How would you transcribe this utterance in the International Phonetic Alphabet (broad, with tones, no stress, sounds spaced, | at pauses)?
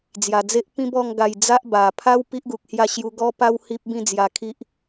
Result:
d͡z j a˨˩ d͡z e˦ ʔ p ĩ˦ b ɔ˥˧ ŋ ɡ a˧ j d͡z a˦ ʔ b a˨˩ pʰ a˦ w p i˦ ʔ ɡ u˨ k̚ h j a˥˧ ɕ j u˧ ɡ ɔ˦ p a˦ w h i˦ p̚ b ĩ˥˧ d͡z j a˧ kʰ i˦ ʔ